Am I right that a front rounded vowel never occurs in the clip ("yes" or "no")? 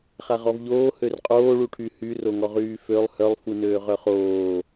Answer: no